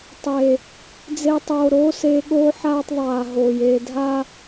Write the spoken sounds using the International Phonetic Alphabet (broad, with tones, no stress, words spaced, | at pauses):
tˤeː˨ | d͡ze˧tˤoː˨ ɾoː˦seː˧ɠoː˦ ħaː˦tˤ ðˤaː˨ ɦoː˨jeː˧ dʱaː˦